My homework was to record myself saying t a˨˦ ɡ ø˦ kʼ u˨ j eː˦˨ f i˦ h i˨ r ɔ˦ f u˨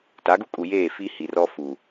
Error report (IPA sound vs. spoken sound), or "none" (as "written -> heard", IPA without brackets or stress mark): ø˦ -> u˦